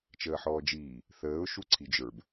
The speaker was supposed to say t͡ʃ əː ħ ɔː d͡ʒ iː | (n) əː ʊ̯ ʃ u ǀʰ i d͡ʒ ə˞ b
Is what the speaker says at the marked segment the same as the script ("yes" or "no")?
no